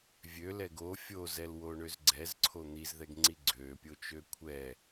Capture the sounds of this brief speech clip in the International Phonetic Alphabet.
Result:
vʲ ø l ɛ ɡ o fʲ o z ɛ l w o ɳ ø z ɡ͡ǀ ɛ z ǀʰ o n̪ i z ð ɛ ɡ ŋ͡ǀ i ɡ͡ǀ ø pʲ o t͡ʃ ø kʷʰ ɛ

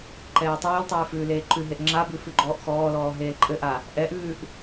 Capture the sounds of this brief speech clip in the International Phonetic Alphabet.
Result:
ǃ ɛː tˤ ʉː l tˤ ʉː f ʉː l eː ǃ ʉ ɦ e ʔ ŋ͡ǁ a b ʉ f ʉ ɡ͡ǃ ɔː ʔ x ɔː l ɔː ɦ eː l ǃʼ ɘ ʔ a | ʔ ɛ ʔ ʉː ʔ

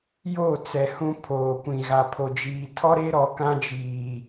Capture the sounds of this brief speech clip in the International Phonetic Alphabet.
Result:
j o˦˨ t͡s ɛ˨ h ũ˦ pʰ oː˨ kʷ ĩ˨ ɣ a˨ pʰ o˨ d͡ʒ iː˨ tʰ ɔ˦ ɾ e˦ ɾ ɔ˨ k ã˦ d͡ʒ iː˨

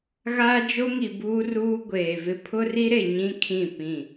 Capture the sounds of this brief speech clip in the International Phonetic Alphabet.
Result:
ɣ aː˦ d͡ʒ o˦ ŋ i˨ b uː˦ r uː˦ ɡʷ eː˨ v ɪ˦ pʰ ʊ˦ r i˦ ɾ e˨ ɲ ĩ˦ kʰ ĩ˦˨ p ĩ˦˨

